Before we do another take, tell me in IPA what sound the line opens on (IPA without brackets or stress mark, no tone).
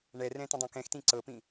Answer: ɳ